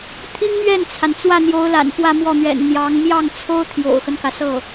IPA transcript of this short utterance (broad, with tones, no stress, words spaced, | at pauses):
t̪ʰi˥ŋmɥɛ˥˩nt͡sʰa˩n t͡swä˥˩n̪jo˧˥ʊ̯ la̰˨˩npwä˥˧mwɔ˥˩n̪ɥɛ̰˨˩n n̪jɑ˧˥ŋ mjɑ˥˩ŋt͡sʰo˥ʊ̯ t̪ʰjo̰˨˩ʊ̯xə˦nkä˩ sɤ˥˩